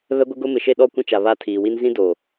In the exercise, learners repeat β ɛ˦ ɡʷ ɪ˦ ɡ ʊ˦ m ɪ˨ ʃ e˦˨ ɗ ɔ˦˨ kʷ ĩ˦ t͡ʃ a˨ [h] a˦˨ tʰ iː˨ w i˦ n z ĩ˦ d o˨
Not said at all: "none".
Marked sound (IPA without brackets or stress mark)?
β